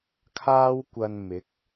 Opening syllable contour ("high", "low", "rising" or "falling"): high